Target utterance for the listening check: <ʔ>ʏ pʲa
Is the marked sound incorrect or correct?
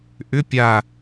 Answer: correct